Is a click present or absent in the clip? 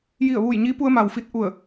absent